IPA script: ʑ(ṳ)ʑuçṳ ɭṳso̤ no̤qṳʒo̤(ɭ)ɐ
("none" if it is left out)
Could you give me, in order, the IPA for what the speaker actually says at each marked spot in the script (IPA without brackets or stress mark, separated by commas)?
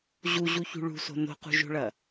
u, ɭ